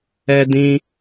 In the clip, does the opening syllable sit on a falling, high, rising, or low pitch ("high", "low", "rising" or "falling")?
high